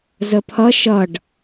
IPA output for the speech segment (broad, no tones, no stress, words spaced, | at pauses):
zəpʰʌ ʃʌɖ